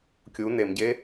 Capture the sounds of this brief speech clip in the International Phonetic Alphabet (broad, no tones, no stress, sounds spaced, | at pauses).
kʲ u n e m ɟ e